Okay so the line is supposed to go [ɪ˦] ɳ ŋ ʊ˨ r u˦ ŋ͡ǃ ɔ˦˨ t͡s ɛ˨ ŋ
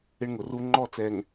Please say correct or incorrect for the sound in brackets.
correct